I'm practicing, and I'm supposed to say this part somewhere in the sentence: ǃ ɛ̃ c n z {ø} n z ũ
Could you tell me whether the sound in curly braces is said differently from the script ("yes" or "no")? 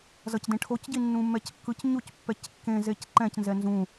yes